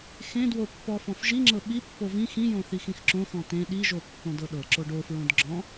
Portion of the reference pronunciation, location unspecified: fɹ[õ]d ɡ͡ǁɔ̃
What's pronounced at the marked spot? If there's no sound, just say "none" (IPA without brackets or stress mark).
õ